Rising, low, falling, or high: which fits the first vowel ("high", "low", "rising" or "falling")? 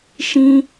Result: high